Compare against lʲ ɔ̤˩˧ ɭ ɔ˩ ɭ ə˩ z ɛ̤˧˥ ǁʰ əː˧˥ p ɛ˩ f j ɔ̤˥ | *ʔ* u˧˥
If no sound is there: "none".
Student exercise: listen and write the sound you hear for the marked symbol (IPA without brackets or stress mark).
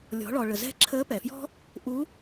ʔ